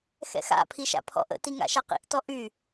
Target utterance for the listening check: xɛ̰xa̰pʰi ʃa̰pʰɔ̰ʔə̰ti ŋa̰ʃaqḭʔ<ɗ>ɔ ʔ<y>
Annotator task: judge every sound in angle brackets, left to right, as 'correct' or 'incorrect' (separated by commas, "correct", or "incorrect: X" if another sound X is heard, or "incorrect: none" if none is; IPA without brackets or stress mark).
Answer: incorrect: t, correct